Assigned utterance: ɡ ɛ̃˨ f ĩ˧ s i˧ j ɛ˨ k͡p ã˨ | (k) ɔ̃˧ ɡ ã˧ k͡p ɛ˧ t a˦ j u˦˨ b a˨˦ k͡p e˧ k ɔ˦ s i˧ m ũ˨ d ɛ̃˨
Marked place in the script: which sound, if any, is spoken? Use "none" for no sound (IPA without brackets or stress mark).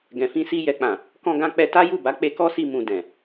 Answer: k